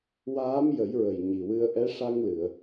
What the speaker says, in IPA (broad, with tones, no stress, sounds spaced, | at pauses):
w aː˧˥ m j ə˨˩˦ j ɹ ə˨˩ j ɲ i˨˩ w ɨ˧ ə̯ ʔ ɛ˧˥ ʂ a˧ ŋ l ɨ˨˩˨ ə̯